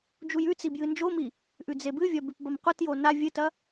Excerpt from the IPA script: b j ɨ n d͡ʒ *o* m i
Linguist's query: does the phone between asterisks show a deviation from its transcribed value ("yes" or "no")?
no